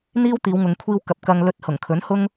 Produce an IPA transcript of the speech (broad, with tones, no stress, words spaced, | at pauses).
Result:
n̪iː˥wt̪iː˨˧wŋʊ˨ŋ kʷʰiː˧w kɐ˨˥p̚kɐ˧ŋ lɵ˨˥t̚ hʊ˨˩ŋkʰɵ˨˥nhʊ˥ŋ